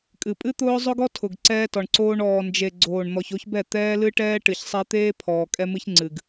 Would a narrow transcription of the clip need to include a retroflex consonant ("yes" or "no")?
yes